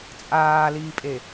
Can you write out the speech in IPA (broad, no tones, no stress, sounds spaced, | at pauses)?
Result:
t͡sʼ aː l iː pʼ e